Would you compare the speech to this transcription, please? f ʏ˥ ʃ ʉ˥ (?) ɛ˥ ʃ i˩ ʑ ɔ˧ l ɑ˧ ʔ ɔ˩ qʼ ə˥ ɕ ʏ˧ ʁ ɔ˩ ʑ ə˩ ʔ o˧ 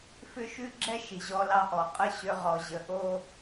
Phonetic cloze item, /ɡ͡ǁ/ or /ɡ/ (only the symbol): ɡ͡ǁ